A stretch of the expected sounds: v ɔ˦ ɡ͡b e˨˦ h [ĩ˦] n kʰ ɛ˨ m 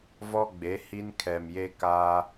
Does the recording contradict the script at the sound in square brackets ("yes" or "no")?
yes